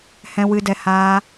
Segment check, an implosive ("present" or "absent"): absent